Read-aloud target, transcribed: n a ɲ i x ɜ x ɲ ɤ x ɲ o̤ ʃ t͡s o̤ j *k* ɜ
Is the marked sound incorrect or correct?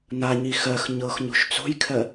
incorrect